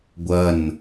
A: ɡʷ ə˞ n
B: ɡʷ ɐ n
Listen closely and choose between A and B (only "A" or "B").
B